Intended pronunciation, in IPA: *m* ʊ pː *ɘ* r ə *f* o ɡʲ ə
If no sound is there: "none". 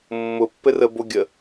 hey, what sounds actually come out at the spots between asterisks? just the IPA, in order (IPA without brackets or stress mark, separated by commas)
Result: mː, ɘ, b